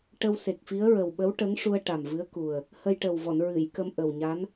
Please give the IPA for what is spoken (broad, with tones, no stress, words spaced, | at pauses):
ʈə˧wse˨˩k̚fi˧˥ə̯ ɹə˨˩wɓə˧˥wʈə˧˥ŋʂu˧ə̯ ʈa˨˩mvɨ˧˥ə̯ku˨˩ə̯ | hə˧jʈə˨˩wvɔ˨˩˨n ɹɨ˨˩˨jkə˧m ʔə˨˩wɲa˧˥n